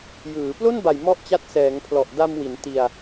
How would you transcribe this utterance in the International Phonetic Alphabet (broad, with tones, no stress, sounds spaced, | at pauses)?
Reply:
j ɯː˩˦ p l o˥˩ n b a˨˩ j m ɔ˥˩ ʔ t͡ɕ a˦˥ t̚ s ɛː˩˦ ŋ pʰ l ɔ˨˩ ʔ d a˧ m w i˩˦ n t i˧ a̯